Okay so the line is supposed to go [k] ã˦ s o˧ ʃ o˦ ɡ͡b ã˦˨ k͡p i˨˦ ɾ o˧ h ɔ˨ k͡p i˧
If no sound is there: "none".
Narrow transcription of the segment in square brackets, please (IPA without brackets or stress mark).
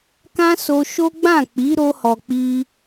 k